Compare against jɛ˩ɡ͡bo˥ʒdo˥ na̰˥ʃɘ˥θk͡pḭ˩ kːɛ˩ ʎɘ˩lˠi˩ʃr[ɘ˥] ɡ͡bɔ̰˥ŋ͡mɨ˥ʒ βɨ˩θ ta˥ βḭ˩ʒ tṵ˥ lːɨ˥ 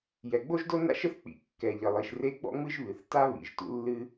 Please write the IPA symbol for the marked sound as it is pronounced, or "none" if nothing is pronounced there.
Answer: e˥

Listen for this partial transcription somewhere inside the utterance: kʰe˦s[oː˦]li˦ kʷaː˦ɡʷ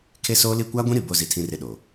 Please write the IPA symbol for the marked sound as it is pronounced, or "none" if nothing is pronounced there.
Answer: oː˦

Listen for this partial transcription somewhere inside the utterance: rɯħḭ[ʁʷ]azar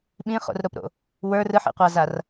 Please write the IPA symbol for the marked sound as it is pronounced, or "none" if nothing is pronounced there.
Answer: qʷ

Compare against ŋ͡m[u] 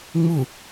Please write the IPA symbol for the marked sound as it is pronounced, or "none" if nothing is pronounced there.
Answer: u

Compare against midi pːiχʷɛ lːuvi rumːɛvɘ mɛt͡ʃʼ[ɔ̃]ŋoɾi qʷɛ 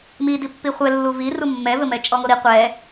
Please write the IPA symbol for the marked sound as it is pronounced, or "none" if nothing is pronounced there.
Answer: ɔ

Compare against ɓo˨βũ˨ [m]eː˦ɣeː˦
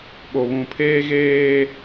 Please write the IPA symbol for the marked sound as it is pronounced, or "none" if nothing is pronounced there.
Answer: pʰ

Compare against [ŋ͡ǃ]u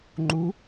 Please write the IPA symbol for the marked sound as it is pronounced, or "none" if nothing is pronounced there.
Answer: ŋ͡ǃ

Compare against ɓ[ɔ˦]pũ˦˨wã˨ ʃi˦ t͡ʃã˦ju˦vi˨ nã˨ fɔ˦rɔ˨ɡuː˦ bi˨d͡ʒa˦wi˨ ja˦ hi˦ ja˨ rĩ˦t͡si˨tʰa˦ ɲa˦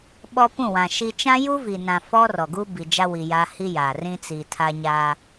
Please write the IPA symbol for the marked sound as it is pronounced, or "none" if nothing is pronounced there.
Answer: ɔ˦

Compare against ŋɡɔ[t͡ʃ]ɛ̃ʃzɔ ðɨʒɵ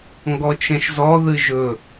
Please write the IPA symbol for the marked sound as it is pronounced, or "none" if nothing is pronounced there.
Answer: t͡ʃ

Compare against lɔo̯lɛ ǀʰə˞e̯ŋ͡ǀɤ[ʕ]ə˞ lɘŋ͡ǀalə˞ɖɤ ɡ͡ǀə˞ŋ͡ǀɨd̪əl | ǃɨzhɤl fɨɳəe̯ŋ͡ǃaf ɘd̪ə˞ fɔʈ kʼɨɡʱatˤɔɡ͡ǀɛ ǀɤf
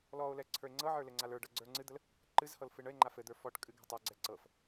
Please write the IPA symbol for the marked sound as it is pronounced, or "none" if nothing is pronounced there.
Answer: ʕ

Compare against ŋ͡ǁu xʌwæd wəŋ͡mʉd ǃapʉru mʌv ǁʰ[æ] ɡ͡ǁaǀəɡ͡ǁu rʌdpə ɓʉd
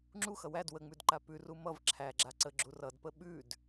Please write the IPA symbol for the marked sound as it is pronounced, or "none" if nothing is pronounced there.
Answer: æ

